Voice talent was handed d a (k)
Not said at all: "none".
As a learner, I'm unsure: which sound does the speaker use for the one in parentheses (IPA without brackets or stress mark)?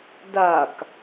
k